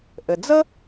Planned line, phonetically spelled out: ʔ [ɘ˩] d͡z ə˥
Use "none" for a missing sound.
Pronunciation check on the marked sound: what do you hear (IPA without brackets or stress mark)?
ɘ˩